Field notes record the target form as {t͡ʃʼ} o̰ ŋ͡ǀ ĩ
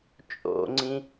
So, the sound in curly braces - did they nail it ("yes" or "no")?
yes